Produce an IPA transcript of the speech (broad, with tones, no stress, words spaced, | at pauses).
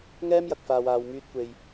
ŋɛː˥mjɐ˨k̚faː˨waː˨w myː˧t̚kʷe˨j